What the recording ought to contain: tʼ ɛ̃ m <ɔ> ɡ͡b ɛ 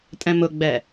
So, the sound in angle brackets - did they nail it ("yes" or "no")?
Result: no